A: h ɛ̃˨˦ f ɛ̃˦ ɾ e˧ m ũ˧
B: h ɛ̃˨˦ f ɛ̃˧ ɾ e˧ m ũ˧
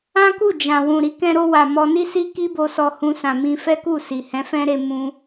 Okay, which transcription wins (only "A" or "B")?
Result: A